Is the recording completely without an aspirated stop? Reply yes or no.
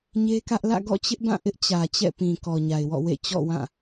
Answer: yes